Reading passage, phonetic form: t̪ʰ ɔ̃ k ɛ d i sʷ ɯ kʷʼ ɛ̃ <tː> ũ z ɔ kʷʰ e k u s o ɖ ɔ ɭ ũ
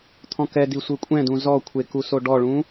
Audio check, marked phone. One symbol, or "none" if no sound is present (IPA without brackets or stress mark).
d